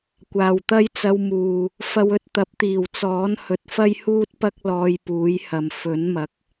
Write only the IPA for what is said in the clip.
kʷaː˨wt̪ɐ˥j t͡sɐ˧wmuː˨ | fɐ˧wɵ˧t̚t̪ɐ˨˥p̚ t̪iː˨˩wt͡sɔː˨˥n hɵ˨t̚fɐ˥jhuː˥t̚pɐ˥k̚ lɔː˧jpuː˨˥jhɐ˨m fɵ˨˥nmɐ˨˥k̚

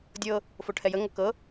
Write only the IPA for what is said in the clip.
dʲɤ | foʈʰɛjə ŋɤkɤ

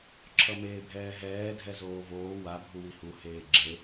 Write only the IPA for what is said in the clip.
ǁʰʌmeːbʱɛːɦɛː dʱɛzoːvoː wa bʱuwihu heːɡ͡ǁe

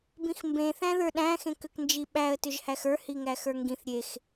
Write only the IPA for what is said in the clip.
bĩxmbẽ θæ̃ðə˞ɗæ̃ xẽkʏknd͡ʒiɓæə̯ tʏʒhæxə˞ hiŋæxə˞ŋɡĩθ ɾʲex

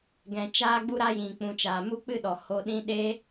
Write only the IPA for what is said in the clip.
ɡɛ̃˨t͡ʃaː˧ɡ͡bu˧ ɾa˧jĩ˨ k͡pũ˨t͡ʃaː˨ mu˦k͡pɨ˦ ɗɔ˨ ho˧ɗĩ˦ ɗeː˧

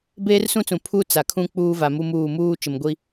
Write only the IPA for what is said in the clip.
beː˦rsũ˦t͡sũ˨ pʰu˦ t͡sa˨kʰũ˦ k͡puː˦va˨mu˦muː˦˨ muː˦ t͡ʃɪ˨mɡʷi˦

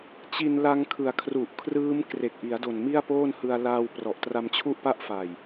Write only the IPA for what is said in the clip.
t͡ɕi˧nla˧ŋkʰɯ˨˩a̯ kʰru˨˩ʔkʰrɯː˦˥m kre˨˩k̚ʔi˩˦a̯do˨˩n mi˥˩a̯poː˥˩nhɯ˧a̯ la˧w prɔ˨˩ʔtra˧mt͡ɕʰu˥˩ʔpa˥˩ʔ fa˨˩j

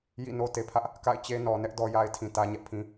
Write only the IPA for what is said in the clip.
jḭ˦˨no˦ te˨pʰä˦ʔ | ka̰˦˨ɪ̯ t͡ɕe˦ nɔ˨nɛ˦ʔ dɔ˦ja˦ɪ̯ tʰĩ˨tä˦ɲɛ˦ʔpʰĩ˦

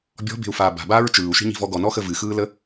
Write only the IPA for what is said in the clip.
bʲɔ̤be̤u̯faː ba̤baːɹ t͡ʃɯːu̯ʃi̤ɲi̤vɔ ɡɔnɔxə vɨxɯːlə

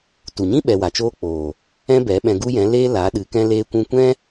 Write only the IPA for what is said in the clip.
tu˨ɲĩ˦ ɓɛ˧wa˨t͡ʃoː˦k͡poː˨ | ɛ̃˦bɛ˨˦ ɓɛ̃˧ɡu˦jɛ̃˨˦ leː˦la˨˦ ɗɨ˨˦kɛ̃˦leː˦ kʷũ˧kʷɛ̃˦

